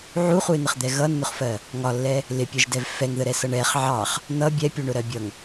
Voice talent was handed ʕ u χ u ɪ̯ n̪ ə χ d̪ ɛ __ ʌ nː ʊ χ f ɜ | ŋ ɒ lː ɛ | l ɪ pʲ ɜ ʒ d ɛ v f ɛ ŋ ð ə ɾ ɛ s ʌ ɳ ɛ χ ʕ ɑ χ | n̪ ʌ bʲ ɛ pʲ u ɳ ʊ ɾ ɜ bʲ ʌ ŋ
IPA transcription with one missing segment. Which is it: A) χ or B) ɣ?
B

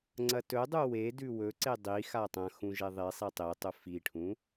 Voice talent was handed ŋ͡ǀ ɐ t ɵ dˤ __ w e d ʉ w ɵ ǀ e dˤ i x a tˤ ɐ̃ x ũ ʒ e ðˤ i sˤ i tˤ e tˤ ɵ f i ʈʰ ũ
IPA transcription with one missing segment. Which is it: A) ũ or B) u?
B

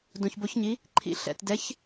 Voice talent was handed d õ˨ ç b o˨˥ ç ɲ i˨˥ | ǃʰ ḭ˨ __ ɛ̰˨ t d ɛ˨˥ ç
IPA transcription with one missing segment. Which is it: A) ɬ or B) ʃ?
A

